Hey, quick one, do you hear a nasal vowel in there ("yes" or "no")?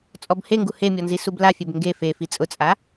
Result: no